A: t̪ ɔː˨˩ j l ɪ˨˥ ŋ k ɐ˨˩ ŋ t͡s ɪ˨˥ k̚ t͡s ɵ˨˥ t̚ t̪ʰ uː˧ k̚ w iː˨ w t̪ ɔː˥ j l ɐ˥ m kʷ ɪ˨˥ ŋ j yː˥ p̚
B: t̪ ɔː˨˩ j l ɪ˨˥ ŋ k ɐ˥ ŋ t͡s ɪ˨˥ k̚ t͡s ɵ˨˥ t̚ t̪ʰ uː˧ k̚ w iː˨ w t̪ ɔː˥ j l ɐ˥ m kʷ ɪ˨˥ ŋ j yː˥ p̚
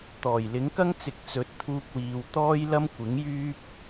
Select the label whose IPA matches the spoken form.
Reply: B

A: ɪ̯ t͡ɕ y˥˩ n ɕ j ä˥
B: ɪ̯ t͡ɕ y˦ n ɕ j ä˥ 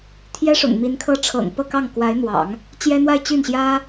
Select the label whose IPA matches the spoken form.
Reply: A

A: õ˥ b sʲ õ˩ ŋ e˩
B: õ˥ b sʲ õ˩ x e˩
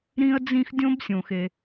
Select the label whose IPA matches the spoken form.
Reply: B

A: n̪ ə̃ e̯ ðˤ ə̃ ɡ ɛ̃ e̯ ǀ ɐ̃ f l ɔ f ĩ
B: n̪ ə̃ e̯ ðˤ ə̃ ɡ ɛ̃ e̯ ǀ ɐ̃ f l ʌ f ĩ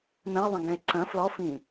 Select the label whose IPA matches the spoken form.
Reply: A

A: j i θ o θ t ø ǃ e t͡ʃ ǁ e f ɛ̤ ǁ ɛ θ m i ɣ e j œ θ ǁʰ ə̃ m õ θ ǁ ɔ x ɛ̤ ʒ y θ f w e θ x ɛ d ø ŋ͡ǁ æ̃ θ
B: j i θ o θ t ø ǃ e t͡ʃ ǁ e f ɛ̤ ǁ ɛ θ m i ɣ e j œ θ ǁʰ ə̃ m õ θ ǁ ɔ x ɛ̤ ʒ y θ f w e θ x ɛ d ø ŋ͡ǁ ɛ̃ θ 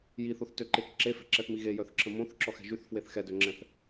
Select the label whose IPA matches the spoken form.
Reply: B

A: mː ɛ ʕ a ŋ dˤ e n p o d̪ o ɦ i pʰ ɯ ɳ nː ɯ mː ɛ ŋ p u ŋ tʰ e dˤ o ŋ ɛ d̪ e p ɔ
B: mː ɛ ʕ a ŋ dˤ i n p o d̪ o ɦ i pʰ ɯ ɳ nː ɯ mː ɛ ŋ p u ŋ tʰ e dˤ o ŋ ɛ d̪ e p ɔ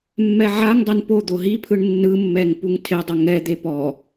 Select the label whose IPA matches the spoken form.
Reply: A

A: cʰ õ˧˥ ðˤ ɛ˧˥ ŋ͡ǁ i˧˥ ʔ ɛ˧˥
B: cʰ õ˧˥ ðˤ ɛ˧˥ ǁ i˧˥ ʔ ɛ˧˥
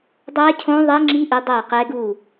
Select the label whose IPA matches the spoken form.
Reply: A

